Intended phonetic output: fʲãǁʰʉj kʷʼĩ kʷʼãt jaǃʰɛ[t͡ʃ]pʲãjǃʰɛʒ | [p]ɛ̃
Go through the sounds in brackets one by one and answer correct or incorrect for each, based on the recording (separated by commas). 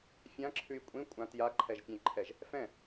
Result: incorrect, incorrect